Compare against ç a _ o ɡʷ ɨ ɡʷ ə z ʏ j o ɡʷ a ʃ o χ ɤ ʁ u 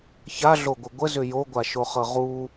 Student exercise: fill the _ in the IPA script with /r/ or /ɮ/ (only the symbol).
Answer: ɮ